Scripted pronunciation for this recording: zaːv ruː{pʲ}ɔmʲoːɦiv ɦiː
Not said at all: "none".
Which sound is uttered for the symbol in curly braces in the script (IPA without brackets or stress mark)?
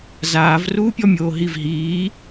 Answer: pʲ